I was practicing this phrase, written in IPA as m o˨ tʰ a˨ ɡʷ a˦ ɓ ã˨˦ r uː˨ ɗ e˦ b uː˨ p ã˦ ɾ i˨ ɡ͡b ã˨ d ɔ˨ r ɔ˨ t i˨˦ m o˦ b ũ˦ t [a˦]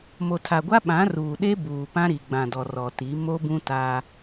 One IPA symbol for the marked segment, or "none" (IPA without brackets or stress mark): a˦